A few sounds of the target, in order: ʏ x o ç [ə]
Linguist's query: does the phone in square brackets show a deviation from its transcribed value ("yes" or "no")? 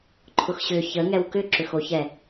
yes